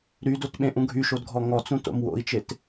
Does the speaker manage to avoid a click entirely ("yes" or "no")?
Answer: yes